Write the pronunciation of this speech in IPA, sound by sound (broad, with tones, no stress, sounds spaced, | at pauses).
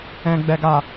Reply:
ɛ̃˨ ɡ͡b ɛ˨ ɡ a˨